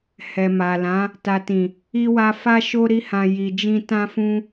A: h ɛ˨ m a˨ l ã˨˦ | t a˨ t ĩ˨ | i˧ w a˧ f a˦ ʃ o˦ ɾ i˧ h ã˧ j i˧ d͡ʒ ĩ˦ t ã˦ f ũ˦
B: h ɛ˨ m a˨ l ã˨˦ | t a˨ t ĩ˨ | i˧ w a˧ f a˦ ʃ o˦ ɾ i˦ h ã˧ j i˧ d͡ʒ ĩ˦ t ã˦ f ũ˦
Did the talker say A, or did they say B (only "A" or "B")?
B